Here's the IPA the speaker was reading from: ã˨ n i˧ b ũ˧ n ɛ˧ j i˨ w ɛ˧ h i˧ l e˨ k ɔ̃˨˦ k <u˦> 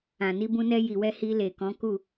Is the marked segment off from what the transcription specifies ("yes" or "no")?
yes